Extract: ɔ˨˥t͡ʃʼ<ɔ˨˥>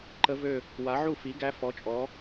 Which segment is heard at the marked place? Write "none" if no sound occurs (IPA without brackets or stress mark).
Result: ɔ˨˥